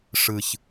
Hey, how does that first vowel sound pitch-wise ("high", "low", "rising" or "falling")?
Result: low